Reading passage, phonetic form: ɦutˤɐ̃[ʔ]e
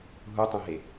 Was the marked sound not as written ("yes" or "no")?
yes